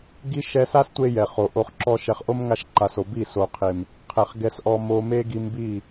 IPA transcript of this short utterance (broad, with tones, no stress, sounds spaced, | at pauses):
ɡ i˦ ʃ ɛ˧ s a˦ s tʷ e˧ j ɛ˨ χ o˨ ʔ o˧ χ ǁ ɔ˦ ʃ ɛ˨ χ ʔ o˦ m ŋ a˧ ʃ ǃ a˨ s o˨ b i˦˨ s o˨ qʰ e˨ m | qʰ ɛ˨ χ ɡ ɛ˧ s ʔ ɔ˧ m o˧ m e˦ ɡ i˧ m b i˦˨